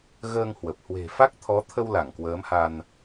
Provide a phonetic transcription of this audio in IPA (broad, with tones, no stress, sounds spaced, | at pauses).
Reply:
ɣ əː˧ ŋ h w ə˨˩ p̚ h w e̤˨˩ f a˦˥ k̚ t̪ʰ ɔ˨˦ t̪ʰ ə˧ w l a˧˩ ŋ k w əː˨˦ m h a˧ n